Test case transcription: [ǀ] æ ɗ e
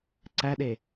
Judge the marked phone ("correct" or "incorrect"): correct